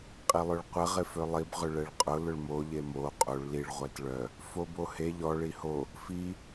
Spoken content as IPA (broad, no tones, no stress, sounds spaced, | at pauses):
qʼ i lˠ ø ɭ qʷ ɛ ʁ ɪ f ø lˠ i b ʁ ʏ ɭ ɛ ɭ qʼ ʊ l ʊ ɭ m o ʎ e m o qʼ o ɭ l i ɭ ʁʷ ɛ t ɭ œ | f o b o h e ʎ ɔ ɭ i h o | f i